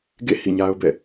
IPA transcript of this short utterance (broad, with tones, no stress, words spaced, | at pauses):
ɡḛ˦˨ hḭ˦˨ɲa˦ʊ̯bɛ̰˦˨